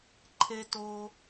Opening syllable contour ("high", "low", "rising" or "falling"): low